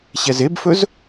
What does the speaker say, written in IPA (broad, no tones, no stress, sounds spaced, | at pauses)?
ɕ ɛ z e b f ɵ z